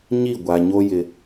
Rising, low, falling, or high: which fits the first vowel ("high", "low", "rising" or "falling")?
falling